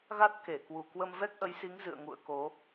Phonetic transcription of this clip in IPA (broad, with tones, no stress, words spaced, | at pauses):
ɣa˦˥t̚ke˧˩kwu˨˩ kwə˧mvɛ˦˥k̚ʔə˨˦jsi˨˦ŋ zɨ̰˧˨ə̯ ŋṵ˧˨ə̯ko˨˦